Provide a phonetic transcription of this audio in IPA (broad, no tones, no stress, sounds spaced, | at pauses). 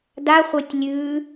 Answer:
d a χʷ œ tʲ lʲ ʉ